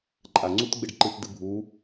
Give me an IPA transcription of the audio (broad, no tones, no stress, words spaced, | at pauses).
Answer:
ǃʼa ŋ͡ǀutɡ͡bɪɖǃɨt dɨbʱu